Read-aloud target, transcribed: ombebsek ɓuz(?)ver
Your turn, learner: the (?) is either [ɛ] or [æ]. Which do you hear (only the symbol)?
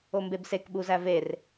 æ